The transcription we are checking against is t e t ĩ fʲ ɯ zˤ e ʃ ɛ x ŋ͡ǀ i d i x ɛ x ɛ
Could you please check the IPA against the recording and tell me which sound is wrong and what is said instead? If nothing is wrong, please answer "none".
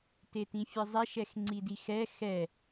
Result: none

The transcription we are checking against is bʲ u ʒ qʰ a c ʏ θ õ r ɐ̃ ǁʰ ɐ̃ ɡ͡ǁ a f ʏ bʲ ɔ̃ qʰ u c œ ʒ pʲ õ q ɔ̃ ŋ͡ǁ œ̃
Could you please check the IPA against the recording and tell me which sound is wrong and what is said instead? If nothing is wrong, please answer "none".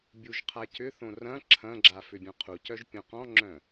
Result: none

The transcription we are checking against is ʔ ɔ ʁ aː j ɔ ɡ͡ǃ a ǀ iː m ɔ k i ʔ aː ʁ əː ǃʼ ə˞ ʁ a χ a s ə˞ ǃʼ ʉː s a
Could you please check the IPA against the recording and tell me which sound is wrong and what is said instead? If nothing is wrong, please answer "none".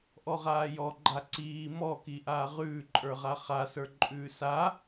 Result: əː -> ʉː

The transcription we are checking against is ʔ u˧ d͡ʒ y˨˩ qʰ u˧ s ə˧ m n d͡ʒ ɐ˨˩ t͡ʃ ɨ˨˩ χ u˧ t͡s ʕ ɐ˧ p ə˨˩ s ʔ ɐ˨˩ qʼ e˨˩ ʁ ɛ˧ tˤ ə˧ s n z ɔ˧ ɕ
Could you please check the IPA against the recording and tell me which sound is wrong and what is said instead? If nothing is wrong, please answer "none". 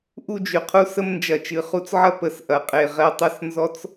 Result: ɕ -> t͡s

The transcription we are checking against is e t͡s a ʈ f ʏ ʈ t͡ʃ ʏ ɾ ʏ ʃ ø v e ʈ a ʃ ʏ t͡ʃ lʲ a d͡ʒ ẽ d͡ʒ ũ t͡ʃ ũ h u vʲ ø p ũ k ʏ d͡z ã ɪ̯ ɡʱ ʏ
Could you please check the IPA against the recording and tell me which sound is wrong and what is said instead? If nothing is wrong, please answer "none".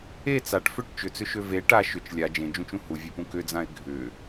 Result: ɾ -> t͡s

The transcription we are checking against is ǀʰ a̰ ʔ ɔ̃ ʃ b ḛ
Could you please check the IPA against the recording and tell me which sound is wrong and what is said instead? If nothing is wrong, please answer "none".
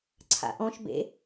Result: none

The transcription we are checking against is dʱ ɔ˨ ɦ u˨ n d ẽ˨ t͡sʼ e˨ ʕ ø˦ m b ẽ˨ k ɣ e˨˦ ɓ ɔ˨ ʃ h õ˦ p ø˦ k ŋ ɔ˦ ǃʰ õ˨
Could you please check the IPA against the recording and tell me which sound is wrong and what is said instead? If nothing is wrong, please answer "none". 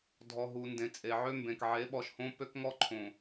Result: ɣ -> ʕ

